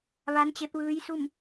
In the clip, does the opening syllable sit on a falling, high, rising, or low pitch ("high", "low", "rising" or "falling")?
rising